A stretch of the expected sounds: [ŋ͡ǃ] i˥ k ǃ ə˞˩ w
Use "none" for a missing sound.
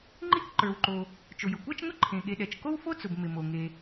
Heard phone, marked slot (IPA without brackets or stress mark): ŋ͡ǃ